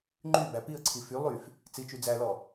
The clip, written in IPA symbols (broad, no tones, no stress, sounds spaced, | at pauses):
ŋ͡ǃ y b æ p i ə̯ ǀʰ i f y lˠ y f | t͡s i t͡ʃ y d͡z æ l ɔ